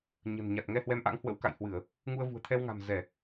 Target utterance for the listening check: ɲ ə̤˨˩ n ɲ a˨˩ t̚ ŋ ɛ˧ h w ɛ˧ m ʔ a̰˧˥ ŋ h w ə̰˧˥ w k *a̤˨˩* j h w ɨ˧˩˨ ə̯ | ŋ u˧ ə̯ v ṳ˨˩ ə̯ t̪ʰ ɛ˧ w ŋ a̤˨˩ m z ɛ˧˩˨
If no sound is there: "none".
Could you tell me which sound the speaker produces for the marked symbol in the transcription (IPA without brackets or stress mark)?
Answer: a̰˧˨